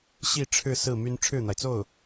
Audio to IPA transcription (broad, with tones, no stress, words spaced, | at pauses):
ɕi˥˧ ʈ͡ʂʰɻ̩˥˧ sɹ̩˥˩my˥n ʈ͡ʂʰɻ̩˥˩n̪a˩ɪ̯t͡so˥˩ʊ̯